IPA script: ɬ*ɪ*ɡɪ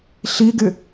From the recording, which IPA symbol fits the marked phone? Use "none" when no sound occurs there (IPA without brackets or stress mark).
i